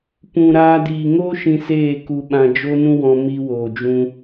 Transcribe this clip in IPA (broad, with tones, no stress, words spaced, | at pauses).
pũ˨ɾaː˧ diː˨ŋoː˦ʃĩ˧ seː˦˨ku˧ɓã˧ d͡ʒo˦nũ˦wɔ̃˧ mi˧woː˨d͡ʒũ˧